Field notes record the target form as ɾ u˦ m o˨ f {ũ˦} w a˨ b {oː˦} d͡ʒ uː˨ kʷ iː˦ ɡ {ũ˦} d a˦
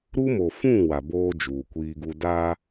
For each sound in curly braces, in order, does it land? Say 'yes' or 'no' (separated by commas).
no, yes, no